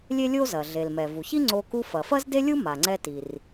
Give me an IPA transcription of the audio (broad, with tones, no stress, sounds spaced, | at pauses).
lʲ e˥ lʲ o˥ z ɐ˩ ɮ e˩ l m ɛ˩ v u˩ ç i˥ ŋ͡ǀ o˧ k u˧ f ɐ˩ f ɐ˥ z d e˥ lʲ u˥ m a˩ ŋ͡ǀ ɛ˧ t i˩ r